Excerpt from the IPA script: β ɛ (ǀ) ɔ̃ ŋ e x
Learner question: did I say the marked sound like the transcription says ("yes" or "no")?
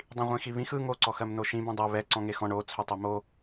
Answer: yes